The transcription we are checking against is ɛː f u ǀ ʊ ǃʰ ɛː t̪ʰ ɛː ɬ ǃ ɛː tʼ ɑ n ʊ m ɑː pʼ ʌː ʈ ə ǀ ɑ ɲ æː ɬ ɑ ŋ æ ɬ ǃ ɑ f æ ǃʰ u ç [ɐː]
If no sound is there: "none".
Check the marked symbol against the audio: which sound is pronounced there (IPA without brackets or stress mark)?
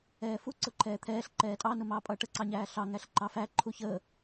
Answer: əː